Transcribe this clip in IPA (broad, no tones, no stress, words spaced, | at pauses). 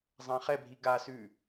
zˤãχɛbʱi ɡasʉ